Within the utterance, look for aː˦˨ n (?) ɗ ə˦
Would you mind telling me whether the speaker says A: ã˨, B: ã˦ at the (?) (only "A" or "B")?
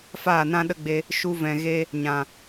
B